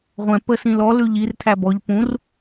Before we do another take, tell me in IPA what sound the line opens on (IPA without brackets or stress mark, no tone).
ʁʷ